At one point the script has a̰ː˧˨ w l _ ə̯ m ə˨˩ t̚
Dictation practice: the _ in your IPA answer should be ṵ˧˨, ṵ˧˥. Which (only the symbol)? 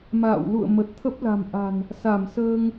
ṵ˧˨